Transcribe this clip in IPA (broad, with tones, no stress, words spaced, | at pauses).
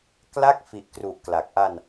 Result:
kla˥˩k̚ fi˨˩ʔkru˨˩ʔ kla˨˩k̚ ʔa˧n